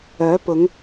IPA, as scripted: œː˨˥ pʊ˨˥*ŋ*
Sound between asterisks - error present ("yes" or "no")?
no